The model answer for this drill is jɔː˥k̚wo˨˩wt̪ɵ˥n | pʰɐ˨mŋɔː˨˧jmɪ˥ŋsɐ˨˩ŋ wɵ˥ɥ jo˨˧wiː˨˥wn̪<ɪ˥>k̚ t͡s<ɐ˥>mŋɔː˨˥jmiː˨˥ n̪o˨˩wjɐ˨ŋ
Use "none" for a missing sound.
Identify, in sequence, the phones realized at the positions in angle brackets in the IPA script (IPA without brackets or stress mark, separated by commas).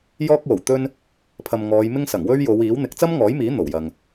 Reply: ɪ˨˥, ɐ˥